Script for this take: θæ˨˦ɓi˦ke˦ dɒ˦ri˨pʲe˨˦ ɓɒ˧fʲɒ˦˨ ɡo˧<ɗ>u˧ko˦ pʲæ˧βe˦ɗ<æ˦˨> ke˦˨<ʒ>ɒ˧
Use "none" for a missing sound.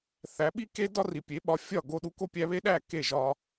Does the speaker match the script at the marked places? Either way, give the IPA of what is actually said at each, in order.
ɗ, æ˦˨, ʒ

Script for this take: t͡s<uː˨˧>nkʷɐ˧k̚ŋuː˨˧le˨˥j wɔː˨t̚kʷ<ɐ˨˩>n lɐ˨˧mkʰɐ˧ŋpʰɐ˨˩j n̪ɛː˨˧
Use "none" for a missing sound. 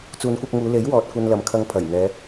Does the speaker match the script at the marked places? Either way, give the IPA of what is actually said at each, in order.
uː˨˧, ɐ˧

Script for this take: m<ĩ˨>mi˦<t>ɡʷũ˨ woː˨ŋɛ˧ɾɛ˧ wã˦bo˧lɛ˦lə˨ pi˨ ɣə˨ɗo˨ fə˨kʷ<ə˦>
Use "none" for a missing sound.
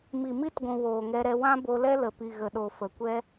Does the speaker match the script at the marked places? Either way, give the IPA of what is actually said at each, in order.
i˨, t, ɛ˦

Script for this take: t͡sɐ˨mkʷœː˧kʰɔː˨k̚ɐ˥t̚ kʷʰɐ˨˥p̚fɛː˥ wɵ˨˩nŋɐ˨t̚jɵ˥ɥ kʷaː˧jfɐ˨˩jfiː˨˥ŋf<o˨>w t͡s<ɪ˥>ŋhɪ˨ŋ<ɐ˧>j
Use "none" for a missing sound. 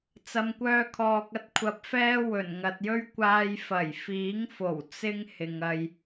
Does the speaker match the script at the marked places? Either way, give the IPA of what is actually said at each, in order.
o˨˩, ɪ˥, ɐ˧

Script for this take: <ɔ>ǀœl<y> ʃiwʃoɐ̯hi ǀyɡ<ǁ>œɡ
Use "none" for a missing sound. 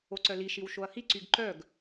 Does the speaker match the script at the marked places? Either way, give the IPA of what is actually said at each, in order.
o, i, ǃ

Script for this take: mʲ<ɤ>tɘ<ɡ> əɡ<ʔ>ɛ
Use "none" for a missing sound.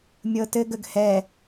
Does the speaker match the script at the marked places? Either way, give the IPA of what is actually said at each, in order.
ɤ, ɡ, h

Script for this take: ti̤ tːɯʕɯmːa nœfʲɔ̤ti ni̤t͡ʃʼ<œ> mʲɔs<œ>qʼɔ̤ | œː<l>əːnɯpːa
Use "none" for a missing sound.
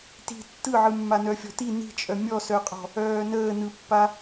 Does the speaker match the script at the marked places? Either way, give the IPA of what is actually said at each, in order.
œ, œ, n

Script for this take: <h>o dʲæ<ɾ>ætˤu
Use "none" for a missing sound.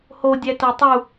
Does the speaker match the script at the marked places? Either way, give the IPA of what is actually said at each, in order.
h, t

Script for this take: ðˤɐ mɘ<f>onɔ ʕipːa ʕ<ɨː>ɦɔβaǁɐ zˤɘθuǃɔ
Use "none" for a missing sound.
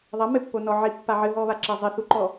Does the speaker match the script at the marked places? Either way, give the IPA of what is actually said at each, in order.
pː, ɨ

